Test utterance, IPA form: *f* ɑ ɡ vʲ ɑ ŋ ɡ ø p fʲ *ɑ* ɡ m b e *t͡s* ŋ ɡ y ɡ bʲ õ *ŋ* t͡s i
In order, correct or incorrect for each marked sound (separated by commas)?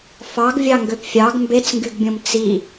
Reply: correct, correct, correct, incorrect